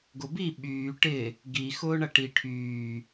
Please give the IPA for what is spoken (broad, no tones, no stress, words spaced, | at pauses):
ɡʊbi ɓyː ʈɪ | ɡi xʊːɳɐʈi ʈʰyː